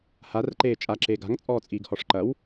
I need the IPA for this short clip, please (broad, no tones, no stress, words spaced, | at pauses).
harǃeː t͡ʃʼaǁeː ɡa̤ŋt͡sʼɔːt͡sʼiːɡhɔʂ ǃɐw